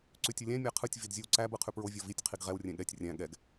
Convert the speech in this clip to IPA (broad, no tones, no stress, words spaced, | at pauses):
ǀʉtʲɯlʲæ̃ mʲæqʰɯtʲ vidzʲɯwǀæ bɯqʰʉpɹo vʲɔvitʲ qʰiɡʁɛw rʲɛ̃ɠɛtʲ rʲæ̃ ɠɛɡ